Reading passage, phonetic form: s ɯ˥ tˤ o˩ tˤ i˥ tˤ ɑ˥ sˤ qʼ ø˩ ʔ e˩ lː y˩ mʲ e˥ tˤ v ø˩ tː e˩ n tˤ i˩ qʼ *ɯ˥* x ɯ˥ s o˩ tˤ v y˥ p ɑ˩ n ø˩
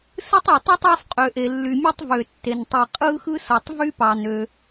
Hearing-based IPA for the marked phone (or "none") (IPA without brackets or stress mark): ɯ˥